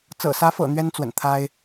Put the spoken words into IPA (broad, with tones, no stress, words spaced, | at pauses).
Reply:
t͡sɤ̰˨˩sä˧˥fɤ̰˨˩ n̪ɥɛ˥nt͡swə̰˨˩nt̪ʰa˥ɪ̯